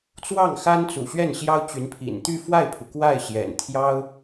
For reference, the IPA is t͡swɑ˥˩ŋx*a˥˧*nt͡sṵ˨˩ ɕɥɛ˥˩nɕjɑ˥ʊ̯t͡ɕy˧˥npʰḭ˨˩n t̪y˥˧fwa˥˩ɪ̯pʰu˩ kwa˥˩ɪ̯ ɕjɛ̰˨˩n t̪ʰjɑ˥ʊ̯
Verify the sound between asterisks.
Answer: incorrect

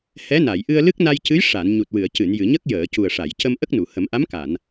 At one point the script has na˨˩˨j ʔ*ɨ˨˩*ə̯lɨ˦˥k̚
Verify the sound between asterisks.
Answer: incorrect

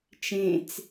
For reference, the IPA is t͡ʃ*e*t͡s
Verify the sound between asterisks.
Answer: incorrect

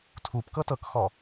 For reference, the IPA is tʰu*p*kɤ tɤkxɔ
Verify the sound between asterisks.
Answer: correct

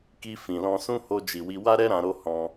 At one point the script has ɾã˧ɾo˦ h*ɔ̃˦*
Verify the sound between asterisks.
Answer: correct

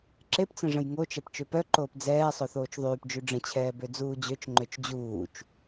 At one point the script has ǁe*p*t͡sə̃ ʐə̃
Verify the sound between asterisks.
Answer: correct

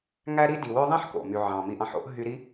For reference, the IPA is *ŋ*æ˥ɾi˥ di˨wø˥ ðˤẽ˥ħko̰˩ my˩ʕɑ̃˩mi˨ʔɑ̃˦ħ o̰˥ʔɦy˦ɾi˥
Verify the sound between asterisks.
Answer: correct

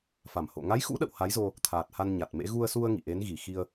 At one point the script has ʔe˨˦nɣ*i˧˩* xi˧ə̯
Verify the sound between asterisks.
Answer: correct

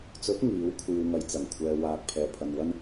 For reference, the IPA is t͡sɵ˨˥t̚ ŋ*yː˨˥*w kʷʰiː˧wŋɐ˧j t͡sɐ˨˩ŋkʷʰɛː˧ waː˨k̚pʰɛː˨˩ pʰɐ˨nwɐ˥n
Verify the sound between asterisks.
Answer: incorrect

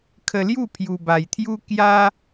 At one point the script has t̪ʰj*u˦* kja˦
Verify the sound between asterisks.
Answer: correct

